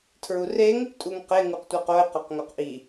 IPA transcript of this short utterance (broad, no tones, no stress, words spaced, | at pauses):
tʰɹureŋ | tʼuŋqe ŋuqtʷeqoɪ̯ qɒqŋoqʔi